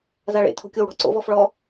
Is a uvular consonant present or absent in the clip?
absent